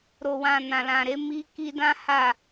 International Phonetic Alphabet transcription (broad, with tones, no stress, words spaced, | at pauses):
ɾo˨wã˨ nã˨lã˨ɾe˨˦ mi˦ ki˧dã˦ ha˦˨